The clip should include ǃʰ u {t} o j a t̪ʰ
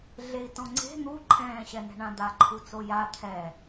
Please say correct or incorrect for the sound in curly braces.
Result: incorrect